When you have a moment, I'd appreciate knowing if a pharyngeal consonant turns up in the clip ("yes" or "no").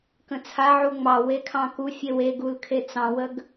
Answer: yes